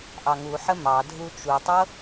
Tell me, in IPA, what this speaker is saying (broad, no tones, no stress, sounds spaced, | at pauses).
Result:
ʔ ɑ ŋ u ħ ə m ɑ dʱ u t͡ʃ u tˤ ɤ